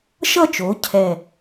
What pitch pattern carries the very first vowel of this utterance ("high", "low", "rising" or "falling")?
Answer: falling